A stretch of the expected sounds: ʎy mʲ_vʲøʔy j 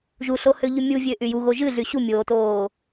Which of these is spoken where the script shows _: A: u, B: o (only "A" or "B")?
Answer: A